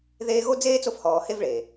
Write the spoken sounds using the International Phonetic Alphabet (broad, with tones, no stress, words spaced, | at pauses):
ðeː˦ɣo˥ d͡zeː˥t͡so˦fhɔː˨ he˦vɭeː˩